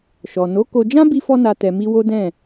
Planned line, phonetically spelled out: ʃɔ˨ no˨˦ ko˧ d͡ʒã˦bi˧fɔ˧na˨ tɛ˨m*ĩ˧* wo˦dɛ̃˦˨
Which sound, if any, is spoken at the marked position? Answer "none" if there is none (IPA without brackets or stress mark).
i˧